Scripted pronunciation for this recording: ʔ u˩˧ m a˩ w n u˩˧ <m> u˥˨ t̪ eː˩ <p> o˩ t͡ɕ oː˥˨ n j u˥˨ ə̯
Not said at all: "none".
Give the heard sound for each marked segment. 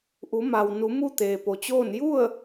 m, p

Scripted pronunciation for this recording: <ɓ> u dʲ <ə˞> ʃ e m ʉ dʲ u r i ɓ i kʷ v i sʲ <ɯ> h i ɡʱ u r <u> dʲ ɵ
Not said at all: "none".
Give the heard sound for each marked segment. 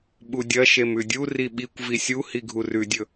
ɓ, ɐ, u, ʉ

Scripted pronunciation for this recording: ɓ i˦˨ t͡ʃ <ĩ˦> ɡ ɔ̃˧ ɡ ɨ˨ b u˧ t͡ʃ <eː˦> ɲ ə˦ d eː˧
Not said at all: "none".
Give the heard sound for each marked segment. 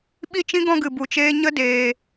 ĩ˦, eː˦

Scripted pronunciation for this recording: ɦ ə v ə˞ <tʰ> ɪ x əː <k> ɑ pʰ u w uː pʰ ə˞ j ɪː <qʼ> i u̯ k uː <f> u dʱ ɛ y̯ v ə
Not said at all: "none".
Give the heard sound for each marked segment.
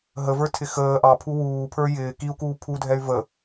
tʰ, ʔ, k, pʰ

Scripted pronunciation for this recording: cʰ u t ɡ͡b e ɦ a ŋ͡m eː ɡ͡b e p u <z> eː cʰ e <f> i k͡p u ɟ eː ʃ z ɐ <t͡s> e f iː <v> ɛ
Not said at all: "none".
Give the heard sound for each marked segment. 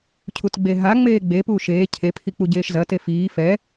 ʃ, pʰ, t, f

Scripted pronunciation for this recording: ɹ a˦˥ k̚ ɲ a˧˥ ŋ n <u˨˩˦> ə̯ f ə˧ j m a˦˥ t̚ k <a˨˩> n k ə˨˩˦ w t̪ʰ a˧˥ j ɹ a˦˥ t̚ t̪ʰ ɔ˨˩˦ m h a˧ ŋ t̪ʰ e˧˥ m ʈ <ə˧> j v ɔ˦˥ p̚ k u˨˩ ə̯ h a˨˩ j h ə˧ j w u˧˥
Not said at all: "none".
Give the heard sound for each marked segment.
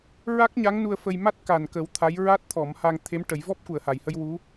u˧, a˨˩, ə˨˩˦

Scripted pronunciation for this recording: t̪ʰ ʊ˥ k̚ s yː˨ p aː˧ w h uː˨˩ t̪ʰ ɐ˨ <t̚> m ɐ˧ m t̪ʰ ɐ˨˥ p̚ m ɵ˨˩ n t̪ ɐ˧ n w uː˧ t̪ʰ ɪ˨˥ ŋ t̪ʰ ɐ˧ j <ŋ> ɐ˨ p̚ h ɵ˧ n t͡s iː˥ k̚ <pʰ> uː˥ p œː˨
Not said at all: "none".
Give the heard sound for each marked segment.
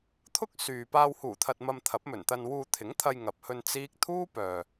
t̚, ŋ, t̪ʰ

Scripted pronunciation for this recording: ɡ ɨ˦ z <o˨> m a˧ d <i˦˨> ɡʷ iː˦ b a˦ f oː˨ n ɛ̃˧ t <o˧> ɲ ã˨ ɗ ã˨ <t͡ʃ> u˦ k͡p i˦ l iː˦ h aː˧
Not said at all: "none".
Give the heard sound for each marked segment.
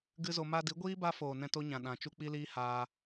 o˧, i˨˦, o˦, t͡ʃ

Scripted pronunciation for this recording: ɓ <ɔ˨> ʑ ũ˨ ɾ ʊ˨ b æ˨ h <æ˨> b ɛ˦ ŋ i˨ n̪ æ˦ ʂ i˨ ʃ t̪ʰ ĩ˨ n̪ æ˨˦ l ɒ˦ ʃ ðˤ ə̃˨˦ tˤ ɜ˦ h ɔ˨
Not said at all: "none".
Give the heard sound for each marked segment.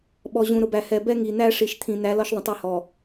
ɔ˨, ɛ˨

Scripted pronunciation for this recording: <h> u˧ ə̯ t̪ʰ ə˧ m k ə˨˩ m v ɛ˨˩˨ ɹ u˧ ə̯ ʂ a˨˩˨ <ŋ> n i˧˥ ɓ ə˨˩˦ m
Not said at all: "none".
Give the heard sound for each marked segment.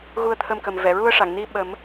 ɣ, ŋ

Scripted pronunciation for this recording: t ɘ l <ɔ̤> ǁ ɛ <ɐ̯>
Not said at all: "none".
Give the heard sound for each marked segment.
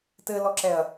ɔ, ɐ̯

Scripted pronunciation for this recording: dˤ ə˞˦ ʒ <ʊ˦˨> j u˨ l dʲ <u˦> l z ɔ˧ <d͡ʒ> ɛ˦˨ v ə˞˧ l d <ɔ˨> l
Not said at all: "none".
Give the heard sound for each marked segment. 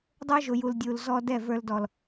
ʊ˨, u˨, d, ɔ˨

